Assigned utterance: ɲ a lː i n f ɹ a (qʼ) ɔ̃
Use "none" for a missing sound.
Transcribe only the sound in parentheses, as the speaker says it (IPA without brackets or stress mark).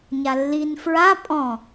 pʼ